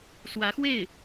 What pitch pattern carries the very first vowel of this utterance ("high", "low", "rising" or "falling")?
rising